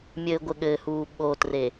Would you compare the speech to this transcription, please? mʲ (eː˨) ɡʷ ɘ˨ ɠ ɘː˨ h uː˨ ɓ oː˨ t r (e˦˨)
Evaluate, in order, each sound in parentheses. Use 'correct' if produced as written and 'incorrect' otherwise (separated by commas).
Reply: incorrect, incorrect